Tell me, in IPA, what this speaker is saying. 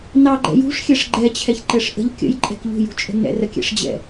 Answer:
nɑɡ͡ǃɛ̰ jṳʂ xʲɛʂɡ͡ǃɛt͡ɕʰɛçǃɛʂ ʔə̤ʎ kʲə̰jǃʼɛ̤k ʎṳjṳt͡ʃʼə̤ nɛ̰rəkʲɛ̰ʂd͡ʑɛ̰

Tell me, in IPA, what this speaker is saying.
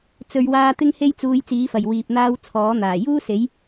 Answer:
t͡sɵ˨˧ɥwaː˧ t̪ɪ˥ŋhe˥jt͡suː˧j t͡siː˨˥fɐ˨˩j wiː˨p̚n̪aː˧w t͡sʰɔː˨˥n̪aː˨˩ juː˥se˨˥j

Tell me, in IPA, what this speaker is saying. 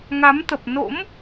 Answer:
ŋa˨˦mt̪ə˨˩p̚ no̰˧˥m

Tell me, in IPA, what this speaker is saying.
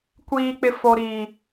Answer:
kʷiː˨k͡pɪ˨ fo˨ɾiː˨

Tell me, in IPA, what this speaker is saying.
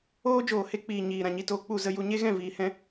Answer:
oː˦ d͡ʒoː˨he˦k͡piː˨ ɲiː˨ ɾã˨ɲi˧toː˧ k͡pu˦˨zə˦ju˧ ɲe˦ɣɛ̃˦˨ viː˧hɛ̃˦

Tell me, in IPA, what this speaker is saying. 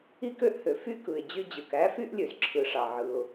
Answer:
i˥kø˥ʔhø˩ fy˥ kɯ˩ɪ̯ d͡ʑy˥d͡ʑɯ˩k æ˥fy˥ʔ lʲø˩zǁʰɯ˩ʂɑ˩ ʕɯ˩ʊ̯

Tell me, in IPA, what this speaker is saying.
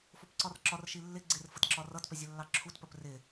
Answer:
fʊpǀɒrǁɒr ʃilːɪ ɡ͡ǀɪr fətǁɒrʌtpə zʲəlːɑǁʰutpəp rɪ

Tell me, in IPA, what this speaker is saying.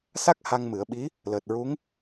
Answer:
sa˦˥k̚ ha˧ŋmɨ˨˩˦ə̯ɓi˧˥ | ləː˨˩t̚ɹu˧˥ŋ

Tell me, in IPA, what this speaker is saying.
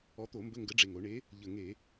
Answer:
ɔ˨˥ t̪o˧˩˧ mbə˧˥˧ŋɡə˨˥ɖ͡ʐe˨˩ŋ o˧˩˧ɳe˨˥ | ʎə˨˩ŋe˧˩˧

